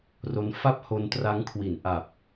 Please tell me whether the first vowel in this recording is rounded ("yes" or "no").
yes